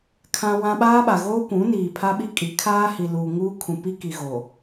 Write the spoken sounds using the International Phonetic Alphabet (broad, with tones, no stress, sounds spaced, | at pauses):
kʰ ã˦ w ã˦ ɓ aː˦ ɓ a˨ ɣ oː˦ kʷ ũ˨˦ n iː˨ pʰ a˦ ɓ i˦ kʼ i˨˦ kʰ aː˦ h i˨ l uː˨ ŋ uː˦ kʰ ũ˨ p i˦ k i˨ ɣ o˨